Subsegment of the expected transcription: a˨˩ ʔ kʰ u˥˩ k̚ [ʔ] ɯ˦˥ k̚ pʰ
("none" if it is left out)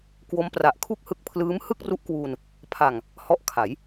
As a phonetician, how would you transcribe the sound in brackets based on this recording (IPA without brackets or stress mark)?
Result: h